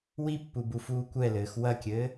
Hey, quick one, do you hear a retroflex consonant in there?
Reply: no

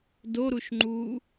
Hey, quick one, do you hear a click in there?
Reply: yes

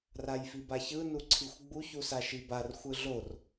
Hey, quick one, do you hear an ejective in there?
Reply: no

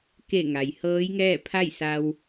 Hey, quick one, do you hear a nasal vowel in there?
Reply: no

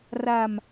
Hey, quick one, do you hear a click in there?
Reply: no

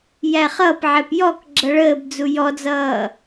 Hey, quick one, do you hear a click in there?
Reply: yes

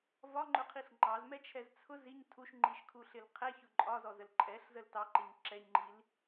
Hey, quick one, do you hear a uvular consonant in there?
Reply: yes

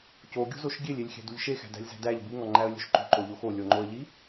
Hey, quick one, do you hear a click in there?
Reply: yes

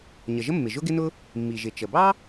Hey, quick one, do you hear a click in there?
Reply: no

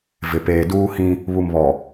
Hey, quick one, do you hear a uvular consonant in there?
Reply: no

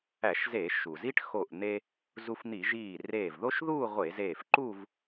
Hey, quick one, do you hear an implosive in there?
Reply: no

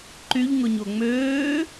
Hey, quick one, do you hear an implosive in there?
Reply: no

